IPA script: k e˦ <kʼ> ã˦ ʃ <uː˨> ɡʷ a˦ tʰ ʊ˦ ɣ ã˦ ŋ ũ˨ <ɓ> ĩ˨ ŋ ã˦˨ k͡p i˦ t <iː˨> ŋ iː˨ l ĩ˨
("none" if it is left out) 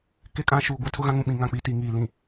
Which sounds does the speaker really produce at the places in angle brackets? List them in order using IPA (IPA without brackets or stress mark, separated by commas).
kʼ, uː˨, ɓ, i˨